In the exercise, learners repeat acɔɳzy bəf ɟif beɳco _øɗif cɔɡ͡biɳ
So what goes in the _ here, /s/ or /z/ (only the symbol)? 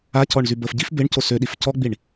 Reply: s